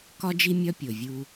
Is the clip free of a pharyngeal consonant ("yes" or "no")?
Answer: yes